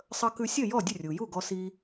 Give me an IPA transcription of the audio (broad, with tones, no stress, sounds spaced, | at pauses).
sˤ ə˧ k ʉ˧ sʲ ə˥˩ j ɔ˥˩ dʲ ə˥˩ rʲ u˩ j u˥˩ ɡ ɔ˧ s i˧